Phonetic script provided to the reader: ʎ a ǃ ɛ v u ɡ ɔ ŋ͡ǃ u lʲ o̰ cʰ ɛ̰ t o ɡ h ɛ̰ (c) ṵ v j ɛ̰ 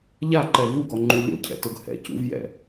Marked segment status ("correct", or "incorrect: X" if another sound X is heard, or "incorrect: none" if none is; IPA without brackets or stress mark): correct